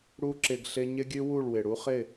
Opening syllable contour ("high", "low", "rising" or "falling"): high